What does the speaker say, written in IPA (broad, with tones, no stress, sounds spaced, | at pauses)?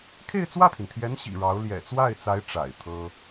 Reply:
kʰ e˥˧ ɪ̯ t͡s w ä˥˩ t̪ʰ i˩ n t̪ʰ j ɛ˧˥ n ɕ ḭ˨˩ ɻ ɑ˧˥ ʊ̯ l j ɛ̰˨˩ t͡s w a˥˩ ɪ̯ t͡s a˧˥ ɪ̯ ʈ͡ʂ a̰˨˩ ɪ̯ t̪ʰ ɤ˥